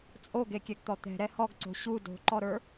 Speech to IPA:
t͡sʼ o ɡ e kʲ ɛ ɡ t̪ ɔ t̪ ɛ̤ ɾ ɛ h ɔ ɡ ǀ o̤ ɕ u d o̤ ǃ ɔ ɾ ə˞

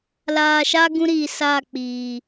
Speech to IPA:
l aː˨ ʃ a˦ ɡ ũ˦ ɾ iː˨ s aː˦˨ k͡p iː˨

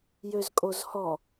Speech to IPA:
j ø z kʼ o z h ɔ

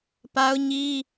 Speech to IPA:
p a˦ ʊ̯ ɲ i˦

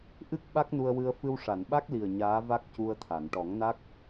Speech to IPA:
ʔ ɨ˦˥ k̚ ɓ a˦˥ k̚ n u˧ ə̯ w ɨ˧ ə̯ f ɨ˧ w ʂ a˨˩˨ n ɓ a˦˥ k̚ l i˨˩ ə̯ ɲ aː˧˥ v a˦˥ k̚ c u˧ ə̯ t̪ʰ a˨˩˨ n ʈ ɔ˨˩˦ ŋ n a˦˥ k̚

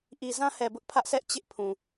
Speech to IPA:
ʔ i˨ z ã˦ h ɛ˨ b ʊ˦ ʔ pʰ ä˦ ʔ s ɛ˦ ʔ t͡ɕ ɪ˦ ʔ pʰ ũ˨

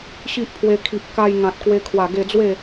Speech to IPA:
ɕ i˦ ʔ pʰ w e˧ kʰ i˨ p̚ k a˧ j ŋ ã˨ t̚ k w e˧ kʰ w a˨˩ ɡ e˧ d͡z w e˥˧

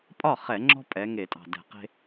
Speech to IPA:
pʼ ɒ˥˩ χ ɛ˧˩˧ ŋ͡ǁ ɔ̤˦ pʼ ɛ˩˧ ŋ e˧˩˧ tʼ ɑ̤˨˩ d ɛ̤˧˩˧ q e̤˦

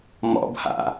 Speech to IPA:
m ɔ̰ b h a̰

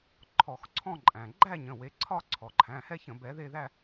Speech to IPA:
ǃʰ ɔ˧˩˧ x ǀʰ ɔ̃˥˧ ǃʼ æ̃˩ ɡ͡ǃ æ˥˧ ɲ ə̃˩˧˩ w e˨˦ ǀʰ ɒ˥˧ ǀʰ ɔ˩ ǃʰ æ̃˩˧˩ h ɛ˥˧ ç ə̃˧˩˧ b ɛ˨˦ ð e˥˧ ð æ˥˧

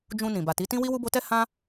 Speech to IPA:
d͡ʒ ũ˧ n ĩ˨ b a˨ t i˨˦ t ĩ˦ w i˦ w u˦ b o˦ t ɛ˦ h ã˦

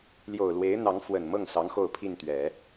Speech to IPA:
l j o˨˩ ʊ̯ l w e˧˥ ɪ̯ n̪ ɑ˧˥ ŋ f w ə˨˩ n m ɤ˥˩ ŋ s ɑ˧˥ ŋ x o˥˧ ʊ̯ pʰ i˥˩ n t̪ ɥ ɛ˨˩˦

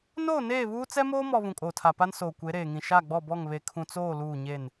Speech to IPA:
n oː˦˨ n eː˦˨ β uː˦ t͡s ɛ˦ m oː˦ m ɔ˨ β ũ˨ kʼ oː˨ tʰ a˨ p a˦ n s oː˨ kʷ e˨˦ ɾ eː˨ ŋ ĩ˨ ʃ a˦˨ ɡ͡b ɔ˦˨ b ɔ˦˨ ŋ β e˨ kʰ ũ˨ t͡s oː˦˨ l uː˦˨ ɲ e˦˨ n

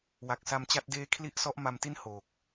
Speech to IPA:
w a˨˩ k̚ s a˧ m t͡ɕ a˦˥ t̚ d eː˦˥ kʰ l i˦˥ ʔ s ɔ˦˥ ʔ m a˧ m t i˥˩ n h oː˨˩ k̚

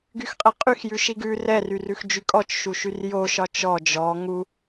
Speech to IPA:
ɡ y x qʼ ɛ qʼ y x j ʉ ʃ i ɡ ʉ r ɛ r y r ʉ x d͡ʒ y kʼ ɔ t͡ʃ ʃ u ʃ y r j o ʃ ɒ t͡ʃ ɔ d͡ʒ ɔ ŋ u

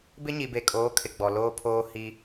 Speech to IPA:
b ɪ˦ ɲ i˨ b e˨ kʼ oː˨˦ kʰ ɪ˨ ɡ͡b ɔ˨ l oː˦ pʰ oː˦ h i˦

